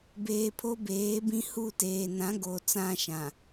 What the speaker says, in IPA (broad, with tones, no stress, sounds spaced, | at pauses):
b eː˨ pʰ o˦ b eː˨˦ b ĩ˦ h u˦˨ t eː˨ n ã˨˦ ɡ oː˨ t͡s ã˦ ʃ ã˨